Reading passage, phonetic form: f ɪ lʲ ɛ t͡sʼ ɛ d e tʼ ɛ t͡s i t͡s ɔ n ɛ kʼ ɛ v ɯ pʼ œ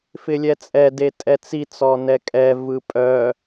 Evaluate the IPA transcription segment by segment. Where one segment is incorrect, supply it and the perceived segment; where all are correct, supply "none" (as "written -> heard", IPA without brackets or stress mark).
none